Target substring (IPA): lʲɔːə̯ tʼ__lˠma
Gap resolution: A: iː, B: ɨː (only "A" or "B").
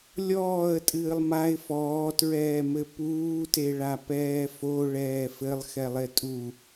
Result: B